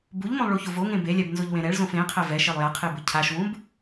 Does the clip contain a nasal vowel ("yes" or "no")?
yes